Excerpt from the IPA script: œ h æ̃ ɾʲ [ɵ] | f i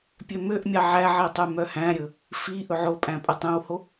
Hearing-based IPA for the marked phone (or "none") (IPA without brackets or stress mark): ɵ